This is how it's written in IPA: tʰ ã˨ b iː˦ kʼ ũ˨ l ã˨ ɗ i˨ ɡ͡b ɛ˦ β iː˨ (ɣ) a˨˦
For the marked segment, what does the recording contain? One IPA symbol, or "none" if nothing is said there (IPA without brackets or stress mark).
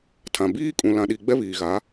ɣ